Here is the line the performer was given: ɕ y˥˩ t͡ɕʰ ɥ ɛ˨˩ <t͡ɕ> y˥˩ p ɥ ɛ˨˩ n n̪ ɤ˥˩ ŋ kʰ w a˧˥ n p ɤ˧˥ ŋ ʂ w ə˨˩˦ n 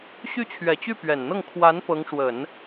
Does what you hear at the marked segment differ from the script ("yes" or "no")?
no